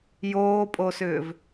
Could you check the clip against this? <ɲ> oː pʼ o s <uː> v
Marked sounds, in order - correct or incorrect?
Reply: incorrect, incorrect

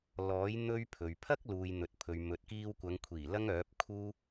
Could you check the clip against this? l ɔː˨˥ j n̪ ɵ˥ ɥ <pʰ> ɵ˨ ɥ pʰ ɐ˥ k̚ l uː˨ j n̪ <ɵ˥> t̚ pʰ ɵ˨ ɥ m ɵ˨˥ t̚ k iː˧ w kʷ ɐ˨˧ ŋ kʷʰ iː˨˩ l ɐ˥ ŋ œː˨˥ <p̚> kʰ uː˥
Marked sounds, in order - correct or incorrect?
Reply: correct, incorrect, correct

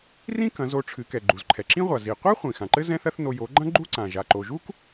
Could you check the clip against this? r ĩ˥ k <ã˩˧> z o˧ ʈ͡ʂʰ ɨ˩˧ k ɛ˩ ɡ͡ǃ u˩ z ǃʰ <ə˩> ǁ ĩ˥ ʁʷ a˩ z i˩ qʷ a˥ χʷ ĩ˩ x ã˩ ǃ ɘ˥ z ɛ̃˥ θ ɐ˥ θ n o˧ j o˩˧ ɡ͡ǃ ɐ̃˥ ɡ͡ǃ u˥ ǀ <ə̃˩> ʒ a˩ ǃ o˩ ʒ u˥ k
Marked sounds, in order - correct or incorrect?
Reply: incorrect, incorrect, incorrect

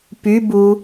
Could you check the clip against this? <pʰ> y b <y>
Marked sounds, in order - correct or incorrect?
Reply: incorrect, incorrect

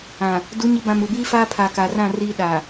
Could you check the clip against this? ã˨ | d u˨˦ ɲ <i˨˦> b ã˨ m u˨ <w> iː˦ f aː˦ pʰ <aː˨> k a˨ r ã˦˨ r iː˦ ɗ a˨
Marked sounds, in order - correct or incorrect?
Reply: correct, incorrect, correct

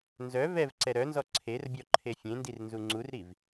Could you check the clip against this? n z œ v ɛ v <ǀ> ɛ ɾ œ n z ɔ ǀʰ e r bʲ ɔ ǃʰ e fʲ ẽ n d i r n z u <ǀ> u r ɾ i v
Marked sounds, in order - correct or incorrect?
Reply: correct, incorrect

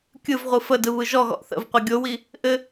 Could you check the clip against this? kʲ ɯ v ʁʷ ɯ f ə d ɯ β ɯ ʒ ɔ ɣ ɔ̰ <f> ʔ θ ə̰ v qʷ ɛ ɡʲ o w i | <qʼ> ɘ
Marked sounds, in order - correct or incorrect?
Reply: incorrect, incorrect

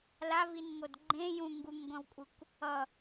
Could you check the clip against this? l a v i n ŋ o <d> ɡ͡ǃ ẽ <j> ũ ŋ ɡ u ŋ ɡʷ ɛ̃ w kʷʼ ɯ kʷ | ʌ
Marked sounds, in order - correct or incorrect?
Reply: correct, correct

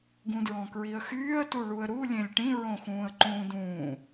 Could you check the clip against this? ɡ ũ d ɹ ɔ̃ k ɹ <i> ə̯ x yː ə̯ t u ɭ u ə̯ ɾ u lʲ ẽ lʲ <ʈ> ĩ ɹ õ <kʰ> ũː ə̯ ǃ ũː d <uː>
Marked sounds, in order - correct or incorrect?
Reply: correct, correct, incorrect, incorrect

